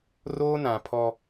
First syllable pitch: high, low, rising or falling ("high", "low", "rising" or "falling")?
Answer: high